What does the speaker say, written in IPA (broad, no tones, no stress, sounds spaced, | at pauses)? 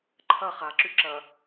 ǃʰ ɐ χ a ǁ y ǁ ɐ